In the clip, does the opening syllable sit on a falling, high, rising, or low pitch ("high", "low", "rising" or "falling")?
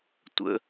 high